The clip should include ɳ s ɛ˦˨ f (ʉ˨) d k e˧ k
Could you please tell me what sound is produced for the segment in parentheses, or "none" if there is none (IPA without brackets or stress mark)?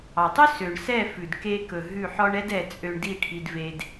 ʉ˨